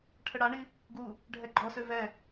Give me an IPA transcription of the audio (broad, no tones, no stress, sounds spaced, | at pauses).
ʈʰ ə ɽ a ɳ i | ɡ u | ɖʱ ɛ ɡ͡ǃ ɔ s ø v ɛ